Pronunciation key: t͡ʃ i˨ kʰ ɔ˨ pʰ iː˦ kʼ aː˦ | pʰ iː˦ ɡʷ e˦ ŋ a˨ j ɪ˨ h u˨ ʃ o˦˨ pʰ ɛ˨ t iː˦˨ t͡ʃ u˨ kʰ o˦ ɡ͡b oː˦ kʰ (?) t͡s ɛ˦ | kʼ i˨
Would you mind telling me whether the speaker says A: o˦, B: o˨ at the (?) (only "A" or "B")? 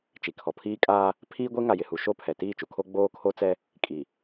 A